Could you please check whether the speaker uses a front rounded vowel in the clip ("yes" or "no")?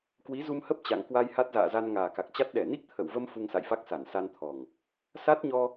no